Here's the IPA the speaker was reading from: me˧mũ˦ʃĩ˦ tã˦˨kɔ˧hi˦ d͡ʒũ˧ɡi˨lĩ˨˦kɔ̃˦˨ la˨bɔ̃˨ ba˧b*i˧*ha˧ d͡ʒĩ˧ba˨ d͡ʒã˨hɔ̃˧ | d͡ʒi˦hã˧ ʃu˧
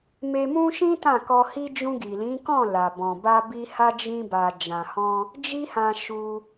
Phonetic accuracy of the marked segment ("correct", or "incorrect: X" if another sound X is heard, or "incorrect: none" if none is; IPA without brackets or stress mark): correct